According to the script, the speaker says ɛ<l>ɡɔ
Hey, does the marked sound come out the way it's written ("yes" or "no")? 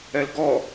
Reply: yes